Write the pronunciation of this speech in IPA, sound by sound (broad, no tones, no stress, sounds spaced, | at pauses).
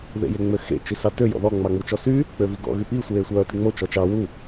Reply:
ð ḛ j e ŋ͡m ø x ḛ t͡ʃ i s ɑ t ø j ɔ̰ ð ɔ ŋ͡m ɑ ŋ͡m u t͡ʃ ɔ s y | k͡p ø v i ɡ ɔ̰ ɣ y p i sʷ eː sʷ œː t i ŋ͡m o t͡ʃ ɔ t͡ʃ ɑ w u